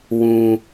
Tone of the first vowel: high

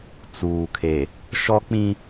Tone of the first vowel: low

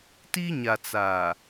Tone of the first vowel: high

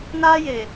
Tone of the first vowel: high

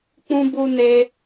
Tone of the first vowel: high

